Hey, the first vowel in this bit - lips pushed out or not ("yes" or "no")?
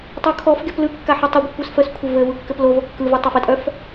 yes